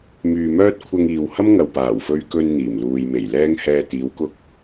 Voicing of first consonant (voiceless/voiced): voiced